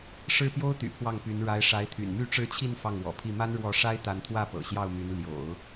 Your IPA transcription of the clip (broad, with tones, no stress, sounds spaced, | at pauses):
ʂ ɻ̩˥˩ p j o˥ ʊ̯ t̪ y̰˨˩ pʰ w ɑ˥˩ ŋ p y˧˥ n ɻ a˧˥ ɪ̯ ʂ a˧˥ ɪ̯ t̪ʰ y̰˨˩ n m y˥˧ ʈ͡ʂ ɻ̩˥˧ t͡ɕʰ i˥˧ n f ɑ˥˩ ŋ w ɔ̰˨˩ pʰ i˥˩ m a˥ n ɻ w ɔ˥˩ ʂ a˥ ɪ̯ t̪ a˧˥ n t̪ʰ w ä˥˩ p ɤ̰˨˩ ɕ j ɑ˥˩ ʊ̯ m y˧˥ n l j o̰˨˩˦ ʊ̯